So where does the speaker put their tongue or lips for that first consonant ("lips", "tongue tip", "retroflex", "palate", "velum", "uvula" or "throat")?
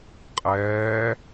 uvula